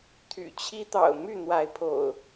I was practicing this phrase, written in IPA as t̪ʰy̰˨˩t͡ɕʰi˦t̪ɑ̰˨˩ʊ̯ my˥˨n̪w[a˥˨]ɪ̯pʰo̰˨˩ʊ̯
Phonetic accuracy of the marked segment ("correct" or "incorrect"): incorrect